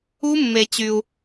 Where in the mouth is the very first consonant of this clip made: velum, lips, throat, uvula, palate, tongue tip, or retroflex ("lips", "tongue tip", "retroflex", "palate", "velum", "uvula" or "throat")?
lips